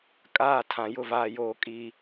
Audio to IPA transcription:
kʼaː˦˨ tʰã˨ jʊ˦˨ vaː˦joː˦ kʼiː˦

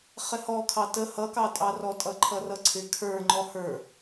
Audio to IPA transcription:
χɪhɔ kʰɑtə hʌkɑtʼɑrɔ tʼʌǃʰʌrʌǀʰɪ kʰə˞ ŋ͡ǃɔhə˞

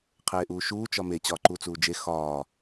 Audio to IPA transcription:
qʰeːʔuːʃuː t͡ʃɒme t͡ɕɒːǃut͡suːd͡ʒe xɒː

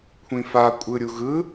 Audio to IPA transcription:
kʷʰĩfa kʷʼɯɾʲuɣɯ

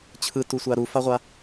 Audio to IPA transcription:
t͡ɕʰɯtusʷa ɾufaʁʷa

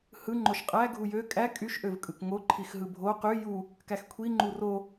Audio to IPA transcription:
hɯ ŋ͡ǃoʃqʼæ ɡʱujø kʼæ kʼyʃʔøv kʼɯkŋo ǃʰixɦɯbʱo qy ju | kæxkʷʰi ŋ͡ǃuro

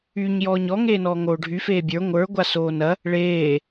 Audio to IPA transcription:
yɲ jɔːɲɔ ŋeːnɔːŋoːɖʱy feːbʲə˞ ŋʷə˞ ɡʷasoːnɐ | ɭeː

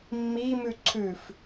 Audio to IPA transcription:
mːimʉ ǀʰʉf

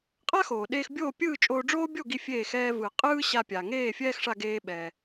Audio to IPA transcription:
qʼa˥xoː˩ɗeː˧x bʲoː˥˨pʲɯː˥˨ t͡ʃʼoː˧ɖ͡ʐoː˥bʲo˥˨ɡi˧ fʲeː˧˩x ɛː˧vɯ˩ qʼɯː˥ɕa˧pʲa˩ ŋeː˥˨fʲɛː˥xʂa˧ɡeː˧ ɓɛ˩

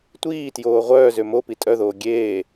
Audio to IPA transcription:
tʷiː tjoːʁʷœːzø mopi tʼœðoː ɡʲeː

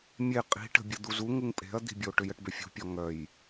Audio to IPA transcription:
mʲe qʼi̤ʈə̤ bʲəd̪uzu ŋuŋpʼe̤ɐ̯d̪i̤bʲo ʈʏjəʈbʏfʲṳ pʲɔŋœj

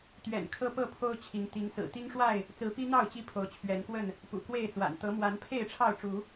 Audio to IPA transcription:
t̪ɥɛ̰˨˩n kʰɤ˦pɤ˥˨pʰo˦ʊ̯ t͡ɕʰi˨˦ŋt̪i˨˦ŋsɹ̩˨˩ t̪i˦ŋʂwa˥˨ɪ̯ | t͡sɹ̩˨˦pi˦ n̪ɑ˥˨ʊ̯ t͡ɕi˦pʰo˨˦ʊ̯t͡ɕʰɥɛ˨˦nkwə˥˨n | pṵ˨˩kwe˥˨ɪ̯t͡swa̰˨˩n t̪ɤ˨˦mwa˨˦n pʰe˥˨ɪ̯ʈ͡ʂʰɑ˥˨ʊ̯ʈ͡ʂu˨˦

